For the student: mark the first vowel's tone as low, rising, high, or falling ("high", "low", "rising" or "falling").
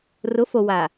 rising